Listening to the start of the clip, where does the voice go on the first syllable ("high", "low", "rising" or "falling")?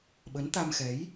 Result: rising